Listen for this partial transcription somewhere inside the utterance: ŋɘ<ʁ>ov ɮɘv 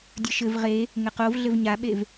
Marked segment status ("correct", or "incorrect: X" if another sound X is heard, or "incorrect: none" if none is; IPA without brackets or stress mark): incorrect: q